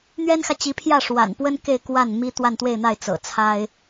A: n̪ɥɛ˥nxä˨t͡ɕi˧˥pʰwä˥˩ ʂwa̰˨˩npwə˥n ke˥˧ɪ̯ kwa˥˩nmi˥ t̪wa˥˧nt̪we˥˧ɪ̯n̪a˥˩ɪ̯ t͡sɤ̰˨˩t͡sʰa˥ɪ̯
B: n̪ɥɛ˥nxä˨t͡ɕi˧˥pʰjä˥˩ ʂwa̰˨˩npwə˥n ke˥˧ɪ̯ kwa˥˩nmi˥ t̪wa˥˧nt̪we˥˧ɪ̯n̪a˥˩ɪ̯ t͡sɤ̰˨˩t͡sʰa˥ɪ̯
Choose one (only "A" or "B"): B